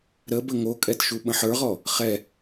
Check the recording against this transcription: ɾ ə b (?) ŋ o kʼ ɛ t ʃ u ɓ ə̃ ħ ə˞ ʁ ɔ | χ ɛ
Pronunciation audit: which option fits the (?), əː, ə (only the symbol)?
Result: ə